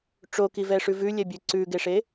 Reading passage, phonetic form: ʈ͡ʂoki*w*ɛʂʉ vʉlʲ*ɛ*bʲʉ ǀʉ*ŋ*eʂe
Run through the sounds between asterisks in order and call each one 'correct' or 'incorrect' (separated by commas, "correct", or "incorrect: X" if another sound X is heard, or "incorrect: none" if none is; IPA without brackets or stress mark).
incorrect: v, correct, incorrect: ɡ